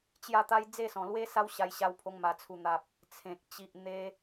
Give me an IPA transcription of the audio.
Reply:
t͡ɕja˥˧t̪a˦j d͡ze˥˧sɔ̃˨˩lwe˦ sa˦w ɕa˧jɕa˧wpʰo˧ŋ ma˨˩t͡sʰu˨˩n̪a˨p̚ | t͡sʰẽ˨k̚ t͡ɕi˨ʔn̪e˧

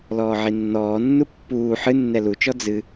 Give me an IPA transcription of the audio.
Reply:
lɔːʕinːɔːnːu pːuː ħɨnːɛ lut͡ʃɔ d͡zɨ

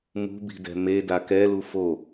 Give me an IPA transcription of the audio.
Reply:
mṳbi̤dɛ̤ meda kɛlu fo

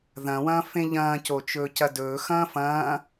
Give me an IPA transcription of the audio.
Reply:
ðɐ̃wɐ̃ːfẽ ʎɐ̃ːcot͡ʃɵːcɐ dɵː xɐ̃ːfɐ̃ː

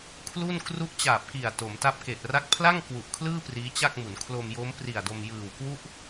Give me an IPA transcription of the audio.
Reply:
kʰlu˥˩n kru˦˥ʔt͡ɕaː˨˩p̚ki˨˩a̯ to˩˦mta˥˩p̚ke˨˩ʔ ra˦˥k̚pʰla˥˩ŋ kwu˨˩ʔkʰlɯː˥˩ priː˦˥t͡ɕa˥˩k̚mu˩˦n kʰlo˧mjo˦˥mpri˨˩a̯do˧m jɯː˨˩wkwu˥˩ʔ

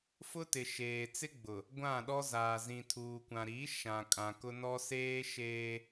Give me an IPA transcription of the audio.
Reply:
fʊ˦tɪ˨ʃeː˨ t͡sɪ˦ɡ͡bʊ˨ | ɡʷã˦˨ɗɔ˦ zaː˨zĩ˨tʰuː˨ kʷã˨ɾi˨˦ʃã˨kʼã˨ kʊ˦nɔ˦ seː˦ ʃeː˦

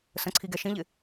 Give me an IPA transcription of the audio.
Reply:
sə̃ǀʰiɡɛ ʃĩʎɪ

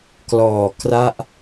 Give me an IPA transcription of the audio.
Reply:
klɔː˨˩kra˦˥ʔ

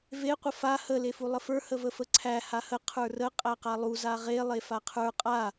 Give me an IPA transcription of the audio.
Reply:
ve qʷəfa hə lefulˠəfə˞ həvəfəǀʰæ hahə qʰə˞rə qʼæqalˠu zaʁe lˠefaqʰə˞ qʼa

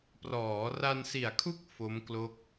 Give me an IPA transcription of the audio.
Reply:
prɔː˩˦ra˧nsi˨˩a̯kʰu˥˩k̚ fo˦˥mklo˦˥k̚

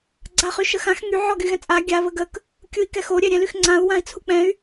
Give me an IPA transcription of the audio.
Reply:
ɡ͡ǀaχyʃəxãx ŋy ʕɔɡyɣɛ̃t͡sʼa ɡʲa βəɡək | kʲui̯kɛxo ɾʲɛɾʲɛ̃lyxŋ͡ǀãu̯ wãi̯t͡sʰuk͡pɛ̃y̯

